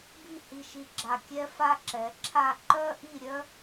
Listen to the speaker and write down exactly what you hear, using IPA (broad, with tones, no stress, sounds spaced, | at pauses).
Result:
b i˥˧ h i˧ ʃ i˧ ɡ͡ǁ a˧˩ kʲ ɛ˥ f a˥ ǁ ɛ˩˧ ǁʰ a˥˧ ǃ œ˥ ʔ i˥˧ ɾʲ œ˥